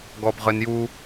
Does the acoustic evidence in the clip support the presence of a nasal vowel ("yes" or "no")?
no